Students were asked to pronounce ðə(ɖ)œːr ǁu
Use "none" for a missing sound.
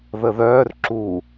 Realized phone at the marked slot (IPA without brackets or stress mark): ð